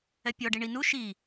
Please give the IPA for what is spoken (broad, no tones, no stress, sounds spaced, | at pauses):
ɛ pʲ ɔ ɖ i ɳ i n u ʃ i